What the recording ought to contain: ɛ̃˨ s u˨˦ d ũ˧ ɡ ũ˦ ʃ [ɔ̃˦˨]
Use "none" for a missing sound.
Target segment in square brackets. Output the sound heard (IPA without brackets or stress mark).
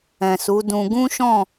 ɔ̃˦˨